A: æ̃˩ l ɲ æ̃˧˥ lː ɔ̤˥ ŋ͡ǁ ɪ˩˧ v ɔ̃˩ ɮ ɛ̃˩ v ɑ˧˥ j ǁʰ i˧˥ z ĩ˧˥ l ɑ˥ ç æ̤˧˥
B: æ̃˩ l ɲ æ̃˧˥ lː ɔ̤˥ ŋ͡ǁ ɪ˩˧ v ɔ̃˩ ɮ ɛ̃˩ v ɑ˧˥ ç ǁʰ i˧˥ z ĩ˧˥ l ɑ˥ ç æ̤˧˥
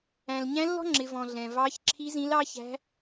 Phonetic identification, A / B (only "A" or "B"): B